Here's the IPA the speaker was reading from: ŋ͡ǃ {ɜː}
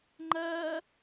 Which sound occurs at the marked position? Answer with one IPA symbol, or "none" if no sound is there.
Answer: ɜː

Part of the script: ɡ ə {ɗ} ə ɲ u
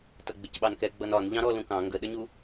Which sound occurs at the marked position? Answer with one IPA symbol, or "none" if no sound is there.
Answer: ɗ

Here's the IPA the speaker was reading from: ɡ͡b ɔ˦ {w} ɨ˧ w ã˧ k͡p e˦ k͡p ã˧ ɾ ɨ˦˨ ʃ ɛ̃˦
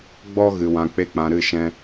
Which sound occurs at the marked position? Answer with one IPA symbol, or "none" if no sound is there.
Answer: ɣ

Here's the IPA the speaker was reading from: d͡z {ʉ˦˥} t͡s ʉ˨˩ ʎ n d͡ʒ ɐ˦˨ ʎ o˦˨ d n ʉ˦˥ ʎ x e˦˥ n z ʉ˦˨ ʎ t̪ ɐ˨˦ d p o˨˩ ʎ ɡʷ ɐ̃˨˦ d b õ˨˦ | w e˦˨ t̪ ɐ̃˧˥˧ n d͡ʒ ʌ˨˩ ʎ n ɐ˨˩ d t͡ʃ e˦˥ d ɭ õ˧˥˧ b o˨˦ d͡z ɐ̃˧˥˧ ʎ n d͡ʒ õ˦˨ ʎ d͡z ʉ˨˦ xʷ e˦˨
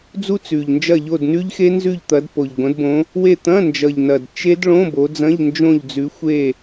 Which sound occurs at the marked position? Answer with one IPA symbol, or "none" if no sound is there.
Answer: u˦˥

